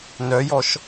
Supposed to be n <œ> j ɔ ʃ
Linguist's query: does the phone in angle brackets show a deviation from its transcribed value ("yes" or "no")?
no